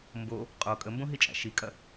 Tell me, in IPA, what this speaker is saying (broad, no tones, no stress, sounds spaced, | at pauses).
m b o | qʼ o kʼ ə m b õ ɦ i t͡ʃʼ æ̰ ʃ i kʼ ɐ